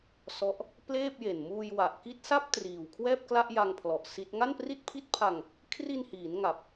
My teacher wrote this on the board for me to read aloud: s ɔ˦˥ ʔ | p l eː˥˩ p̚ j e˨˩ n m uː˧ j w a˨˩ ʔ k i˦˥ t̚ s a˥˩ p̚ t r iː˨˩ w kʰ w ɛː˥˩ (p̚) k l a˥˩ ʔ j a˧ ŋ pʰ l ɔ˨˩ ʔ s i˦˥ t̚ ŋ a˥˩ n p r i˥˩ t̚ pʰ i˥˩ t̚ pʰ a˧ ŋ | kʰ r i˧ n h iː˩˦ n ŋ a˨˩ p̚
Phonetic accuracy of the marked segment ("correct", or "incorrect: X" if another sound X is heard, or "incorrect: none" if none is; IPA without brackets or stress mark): correct